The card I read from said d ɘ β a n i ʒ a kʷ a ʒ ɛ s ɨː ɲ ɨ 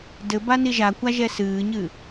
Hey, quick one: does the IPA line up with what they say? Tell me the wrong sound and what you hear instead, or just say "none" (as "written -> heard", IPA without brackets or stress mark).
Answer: β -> b